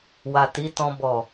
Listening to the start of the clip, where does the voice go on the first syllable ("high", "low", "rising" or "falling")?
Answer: low